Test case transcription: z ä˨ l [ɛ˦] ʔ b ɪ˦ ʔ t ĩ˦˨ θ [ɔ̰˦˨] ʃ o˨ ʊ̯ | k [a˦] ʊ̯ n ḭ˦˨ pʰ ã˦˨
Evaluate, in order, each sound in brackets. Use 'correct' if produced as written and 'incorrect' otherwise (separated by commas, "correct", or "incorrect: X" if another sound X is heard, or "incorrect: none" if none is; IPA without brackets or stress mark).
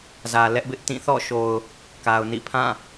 correct, correct, incorrect: a˨